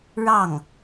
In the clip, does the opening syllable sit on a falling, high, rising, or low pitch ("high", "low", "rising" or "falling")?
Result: falling